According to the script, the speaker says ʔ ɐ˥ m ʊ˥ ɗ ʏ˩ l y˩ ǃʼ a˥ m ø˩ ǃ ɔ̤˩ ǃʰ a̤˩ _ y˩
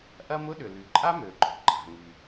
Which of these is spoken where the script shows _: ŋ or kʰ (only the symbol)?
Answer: ŋ